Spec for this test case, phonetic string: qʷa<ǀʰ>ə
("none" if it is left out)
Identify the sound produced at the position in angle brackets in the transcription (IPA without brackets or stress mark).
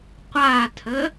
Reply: tʰ